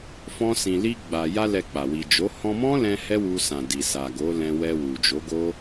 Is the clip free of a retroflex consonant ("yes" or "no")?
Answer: yes